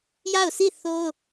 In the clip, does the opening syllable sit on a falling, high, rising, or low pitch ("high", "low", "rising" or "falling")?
falling